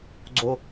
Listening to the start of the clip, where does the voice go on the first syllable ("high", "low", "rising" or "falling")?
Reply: high